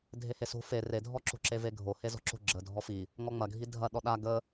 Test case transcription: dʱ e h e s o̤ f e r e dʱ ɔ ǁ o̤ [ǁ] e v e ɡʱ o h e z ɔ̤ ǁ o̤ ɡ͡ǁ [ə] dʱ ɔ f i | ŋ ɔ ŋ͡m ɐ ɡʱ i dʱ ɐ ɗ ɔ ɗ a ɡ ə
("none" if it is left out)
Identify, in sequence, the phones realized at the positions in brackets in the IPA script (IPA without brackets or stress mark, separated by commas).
ǁ, ə